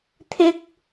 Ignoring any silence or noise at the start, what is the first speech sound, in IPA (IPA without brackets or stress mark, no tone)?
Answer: t̪ʰ